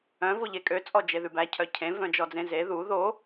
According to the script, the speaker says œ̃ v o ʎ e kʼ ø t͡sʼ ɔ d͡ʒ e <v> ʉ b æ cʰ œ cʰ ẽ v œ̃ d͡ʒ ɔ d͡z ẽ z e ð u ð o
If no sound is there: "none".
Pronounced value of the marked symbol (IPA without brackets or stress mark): ð